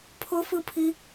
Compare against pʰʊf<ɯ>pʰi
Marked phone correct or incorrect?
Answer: correct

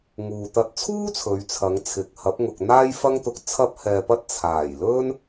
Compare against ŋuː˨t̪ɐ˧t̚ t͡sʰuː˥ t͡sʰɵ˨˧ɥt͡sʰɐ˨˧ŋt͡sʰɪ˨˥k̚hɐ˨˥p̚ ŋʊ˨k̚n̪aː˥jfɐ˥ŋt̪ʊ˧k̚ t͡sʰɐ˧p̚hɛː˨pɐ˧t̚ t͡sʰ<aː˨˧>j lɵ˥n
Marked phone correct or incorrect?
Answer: incorrect: aː˨˩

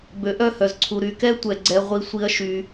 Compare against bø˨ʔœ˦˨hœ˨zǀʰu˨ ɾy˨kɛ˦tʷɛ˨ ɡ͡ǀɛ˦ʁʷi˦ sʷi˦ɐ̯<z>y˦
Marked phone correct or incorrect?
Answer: incorrect: ʃ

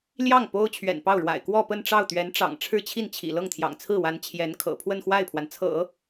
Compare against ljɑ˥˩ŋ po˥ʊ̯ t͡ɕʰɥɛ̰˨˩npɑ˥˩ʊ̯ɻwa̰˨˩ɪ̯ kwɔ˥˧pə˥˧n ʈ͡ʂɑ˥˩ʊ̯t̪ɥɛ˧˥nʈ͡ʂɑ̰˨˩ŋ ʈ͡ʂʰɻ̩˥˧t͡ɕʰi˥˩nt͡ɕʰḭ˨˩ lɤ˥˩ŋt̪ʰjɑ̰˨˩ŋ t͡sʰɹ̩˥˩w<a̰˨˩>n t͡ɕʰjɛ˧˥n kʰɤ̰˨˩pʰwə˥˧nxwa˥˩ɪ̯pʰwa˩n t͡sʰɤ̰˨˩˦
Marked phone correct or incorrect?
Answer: incorrect: a˧˥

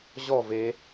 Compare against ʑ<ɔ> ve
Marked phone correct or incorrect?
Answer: correct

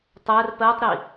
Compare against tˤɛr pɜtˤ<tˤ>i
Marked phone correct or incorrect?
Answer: incorrect: ɾ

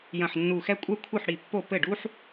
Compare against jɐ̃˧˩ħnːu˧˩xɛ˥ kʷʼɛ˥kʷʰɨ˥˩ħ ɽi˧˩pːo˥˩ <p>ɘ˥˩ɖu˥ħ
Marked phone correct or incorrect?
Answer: correct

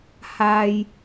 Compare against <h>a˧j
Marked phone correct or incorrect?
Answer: correct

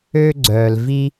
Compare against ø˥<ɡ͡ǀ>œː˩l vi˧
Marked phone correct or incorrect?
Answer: correct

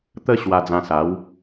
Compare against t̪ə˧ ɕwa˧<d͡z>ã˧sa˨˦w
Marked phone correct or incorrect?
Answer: correct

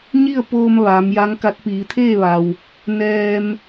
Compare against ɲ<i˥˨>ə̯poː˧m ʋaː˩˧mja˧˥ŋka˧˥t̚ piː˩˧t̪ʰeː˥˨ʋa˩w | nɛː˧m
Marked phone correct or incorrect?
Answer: correct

